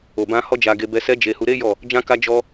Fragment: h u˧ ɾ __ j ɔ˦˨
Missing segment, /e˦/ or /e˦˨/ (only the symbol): e˦